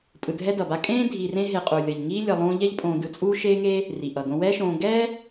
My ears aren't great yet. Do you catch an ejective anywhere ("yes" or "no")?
yes